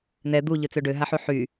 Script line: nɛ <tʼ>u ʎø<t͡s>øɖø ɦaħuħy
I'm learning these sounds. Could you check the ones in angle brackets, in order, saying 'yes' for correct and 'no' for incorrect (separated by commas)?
no, yes